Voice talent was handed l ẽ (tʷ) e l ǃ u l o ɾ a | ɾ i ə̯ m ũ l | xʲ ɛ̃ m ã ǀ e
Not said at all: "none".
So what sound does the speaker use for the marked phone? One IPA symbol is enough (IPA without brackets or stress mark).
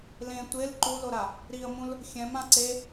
tʷ